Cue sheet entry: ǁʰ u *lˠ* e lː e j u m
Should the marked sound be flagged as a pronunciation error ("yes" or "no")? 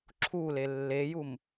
yes